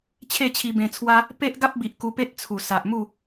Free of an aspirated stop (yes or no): no